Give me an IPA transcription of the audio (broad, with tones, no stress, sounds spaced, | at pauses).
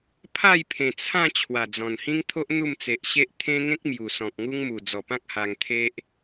pʰ a˥˧ j pʰ ẽ˨˩ t͡sʰ ã˥˧ t͡ɕʰ w a˨˩ d͡z ɔ̃˨˩ n h ĩ˦ ŋ t̪ʰ o˦ ʔ n̪ u˥˧ m t͡s e˨ ʔ ɕ e˦ ʔ t̪ʰ ẽ˦ ŋ ẽ˦ k̚ m j u˨˩ s ɔ̃˨ k̚ ŋ u˦ ŋ m u˨˩ d͡z ɔ˨˩ p ã˦ k̚ h a˧ ŋ t̪ʰ e˦ ʔ